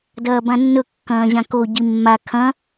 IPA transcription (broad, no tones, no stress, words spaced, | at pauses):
dɐːbãnːɵ kːɐ̃ːʑãko ɟimːa kʰɐ̃